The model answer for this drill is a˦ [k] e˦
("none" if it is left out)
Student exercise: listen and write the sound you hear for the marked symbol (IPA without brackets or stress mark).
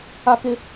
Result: k